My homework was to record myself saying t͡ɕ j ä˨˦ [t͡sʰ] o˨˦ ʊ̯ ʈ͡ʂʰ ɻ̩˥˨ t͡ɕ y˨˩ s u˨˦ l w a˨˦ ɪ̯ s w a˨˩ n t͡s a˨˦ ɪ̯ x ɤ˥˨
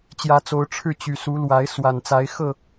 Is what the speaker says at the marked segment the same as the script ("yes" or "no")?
no